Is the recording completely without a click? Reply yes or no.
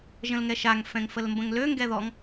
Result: yes